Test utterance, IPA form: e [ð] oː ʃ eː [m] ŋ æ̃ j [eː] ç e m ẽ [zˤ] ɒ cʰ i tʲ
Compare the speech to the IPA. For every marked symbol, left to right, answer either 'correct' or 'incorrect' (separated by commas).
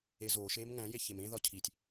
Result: incorrect, correct, incorrect, incorrect